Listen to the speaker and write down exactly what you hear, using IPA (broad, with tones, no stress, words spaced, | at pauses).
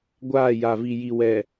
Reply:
ɡʷaː˦˨ja˨vi˨ ji˨ wɛ˨